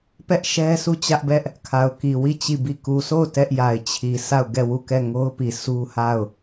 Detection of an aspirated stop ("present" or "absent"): present